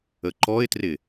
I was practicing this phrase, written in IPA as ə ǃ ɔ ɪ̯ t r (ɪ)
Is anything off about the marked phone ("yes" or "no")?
no